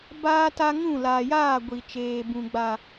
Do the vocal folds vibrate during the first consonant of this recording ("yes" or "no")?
yes